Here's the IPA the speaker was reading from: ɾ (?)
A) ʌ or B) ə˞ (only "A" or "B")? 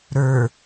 B